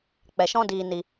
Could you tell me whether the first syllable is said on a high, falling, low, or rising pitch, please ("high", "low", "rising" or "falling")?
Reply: low